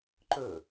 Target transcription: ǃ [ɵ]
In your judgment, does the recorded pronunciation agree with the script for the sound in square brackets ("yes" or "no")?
yes